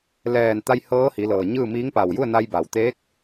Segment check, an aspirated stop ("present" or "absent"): absent